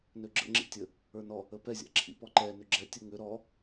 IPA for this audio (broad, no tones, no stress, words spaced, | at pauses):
nøɡ͡ǁə̰ ŋ͡ǁḭtʲə | ə˞nɔ | əpɛ zʲa̰ǁʰḭpɔǃɛ nʏɡ͡ǁɛ tʲəŋʏ ɾɔ